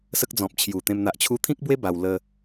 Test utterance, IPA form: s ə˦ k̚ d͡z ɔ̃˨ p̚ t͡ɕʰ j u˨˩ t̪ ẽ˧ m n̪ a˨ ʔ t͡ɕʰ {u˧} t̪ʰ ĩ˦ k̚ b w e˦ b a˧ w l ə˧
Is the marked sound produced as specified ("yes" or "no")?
yes